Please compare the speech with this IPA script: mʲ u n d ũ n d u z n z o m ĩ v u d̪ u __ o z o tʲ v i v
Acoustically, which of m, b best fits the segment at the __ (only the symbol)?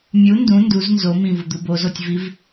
b